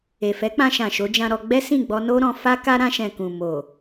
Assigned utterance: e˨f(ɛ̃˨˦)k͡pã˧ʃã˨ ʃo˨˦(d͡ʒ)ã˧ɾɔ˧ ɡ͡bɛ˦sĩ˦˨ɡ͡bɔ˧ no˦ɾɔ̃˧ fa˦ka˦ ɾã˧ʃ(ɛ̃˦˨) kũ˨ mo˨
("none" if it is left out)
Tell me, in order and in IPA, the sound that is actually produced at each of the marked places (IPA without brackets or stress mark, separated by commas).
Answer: ɛ˨˦, d͡ʒ, ɛ̃˨